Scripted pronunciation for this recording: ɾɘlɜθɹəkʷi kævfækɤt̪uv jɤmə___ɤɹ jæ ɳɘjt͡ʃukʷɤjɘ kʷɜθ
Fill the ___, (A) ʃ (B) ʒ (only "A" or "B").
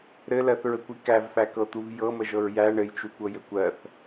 B